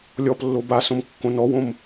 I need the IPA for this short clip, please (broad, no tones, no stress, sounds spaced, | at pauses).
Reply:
lʲ ɔ p lː o b a s õ m kː õ n ɔ w õ m